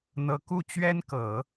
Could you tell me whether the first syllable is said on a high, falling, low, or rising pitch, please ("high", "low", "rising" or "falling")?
high